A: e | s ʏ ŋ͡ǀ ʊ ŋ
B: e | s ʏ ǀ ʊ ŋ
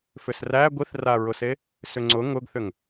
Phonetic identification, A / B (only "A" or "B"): A